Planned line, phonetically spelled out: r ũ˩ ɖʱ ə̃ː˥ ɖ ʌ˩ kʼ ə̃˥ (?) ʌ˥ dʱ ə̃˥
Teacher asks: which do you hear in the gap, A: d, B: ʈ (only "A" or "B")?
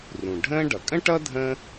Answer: B